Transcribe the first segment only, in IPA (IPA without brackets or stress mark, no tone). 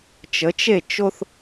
t͡ʃ